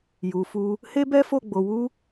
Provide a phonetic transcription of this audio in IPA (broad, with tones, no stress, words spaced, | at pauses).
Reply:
ju˨fu˧ | he˦bɛ˦fo˦˨ ɡ͡bo˨wu˧